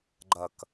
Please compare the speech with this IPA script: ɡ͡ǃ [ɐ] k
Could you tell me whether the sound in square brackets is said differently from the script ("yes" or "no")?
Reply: no